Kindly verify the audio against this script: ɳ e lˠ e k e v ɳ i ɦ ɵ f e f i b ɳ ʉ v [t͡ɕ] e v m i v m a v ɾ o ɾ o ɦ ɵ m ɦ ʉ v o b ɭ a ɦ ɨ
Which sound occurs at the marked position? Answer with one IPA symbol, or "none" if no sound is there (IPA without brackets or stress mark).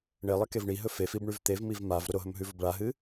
t̪